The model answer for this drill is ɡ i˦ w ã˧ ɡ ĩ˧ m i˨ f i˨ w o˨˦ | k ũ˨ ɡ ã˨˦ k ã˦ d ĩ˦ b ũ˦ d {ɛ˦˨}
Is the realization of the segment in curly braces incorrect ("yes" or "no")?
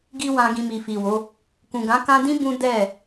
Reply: no